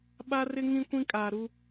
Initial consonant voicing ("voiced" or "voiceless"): voiced